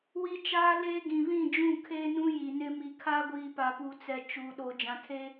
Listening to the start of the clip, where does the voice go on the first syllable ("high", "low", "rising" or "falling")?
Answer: high